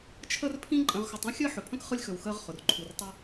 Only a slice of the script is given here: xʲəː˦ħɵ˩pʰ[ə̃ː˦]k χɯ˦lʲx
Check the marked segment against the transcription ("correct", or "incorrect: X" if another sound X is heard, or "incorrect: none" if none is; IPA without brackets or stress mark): incorrect: ə̃˦